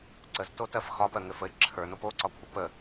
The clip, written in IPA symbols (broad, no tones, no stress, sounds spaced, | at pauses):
ǀ ə z t o t ɜ f x ɒ p ɜ ŋ ɘ f ə ɪ̯ ǁʰ ə˞ n o p o ǀ ɒ kʷʰ ə p ə